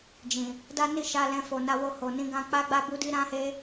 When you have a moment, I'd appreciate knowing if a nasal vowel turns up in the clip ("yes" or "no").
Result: yes